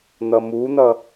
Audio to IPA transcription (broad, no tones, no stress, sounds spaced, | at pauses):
n̪ ʌ m u n̪ ʌ